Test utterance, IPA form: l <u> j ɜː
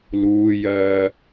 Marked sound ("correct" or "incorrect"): incorrect